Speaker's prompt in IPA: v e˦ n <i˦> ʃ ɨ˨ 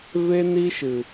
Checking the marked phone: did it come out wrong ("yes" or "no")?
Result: no